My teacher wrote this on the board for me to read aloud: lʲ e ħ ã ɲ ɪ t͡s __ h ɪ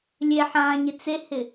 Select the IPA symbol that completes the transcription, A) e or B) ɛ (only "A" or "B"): A